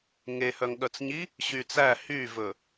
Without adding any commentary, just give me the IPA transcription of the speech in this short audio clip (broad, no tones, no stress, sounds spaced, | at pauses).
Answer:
ŋ e h œ ŋ ɠ œ t͡s ɲ i | ɕ y t͡s æ h y v ɵ